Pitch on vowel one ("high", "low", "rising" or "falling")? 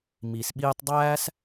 low